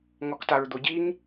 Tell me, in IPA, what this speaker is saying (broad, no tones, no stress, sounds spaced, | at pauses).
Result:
ŋ ɔ k t a ɹ d̪ o ɟ i ŋ